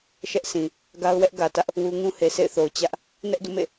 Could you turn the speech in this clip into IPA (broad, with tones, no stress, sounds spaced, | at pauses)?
ʃ ɛ˦ ʔ s ĩ˨ | ɡ a˦ ʊ̯ w ɛ˦ ʔ ɡ ä˨ t ä˦ ʔ | w u˦ ŋ ũ˦ h e˨ sʰ ḛ˦˨ ɪ̯ θ o˨ ʊ̯ t͡ɕ ä˦ ʔ | n ɛ˦ ʔ d ṵ˦˨ m ḛ˦˨